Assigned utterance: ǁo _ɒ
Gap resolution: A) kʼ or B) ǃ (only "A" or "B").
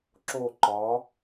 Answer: B